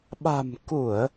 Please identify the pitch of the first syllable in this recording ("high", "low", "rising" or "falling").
low